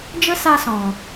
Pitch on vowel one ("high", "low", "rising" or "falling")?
high